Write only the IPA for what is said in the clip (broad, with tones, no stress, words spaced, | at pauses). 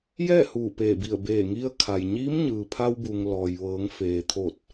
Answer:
jɛː˥˨huː˧˩ peː˧˩bi˧˩ə̯ beː˧˩ŋi˧ə̯kʰa˩j ɲiː˧˥mɲɯː˩pʰa˧wbu˩ŋ lɔː˩jʋɤː˩˧ŋfeː˩ t̪ʰo˧˩t̚